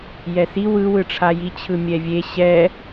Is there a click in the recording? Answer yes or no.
no